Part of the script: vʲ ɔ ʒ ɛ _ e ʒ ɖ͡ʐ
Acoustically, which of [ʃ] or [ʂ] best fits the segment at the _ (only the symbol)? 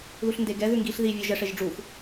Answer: ʂ